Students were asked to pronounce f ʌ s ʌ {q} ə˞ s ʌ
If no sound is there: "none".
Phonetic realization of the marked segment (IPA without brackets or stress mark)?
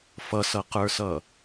q